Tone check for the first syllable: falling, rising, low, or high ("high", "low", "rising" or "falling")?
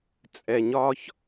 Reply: low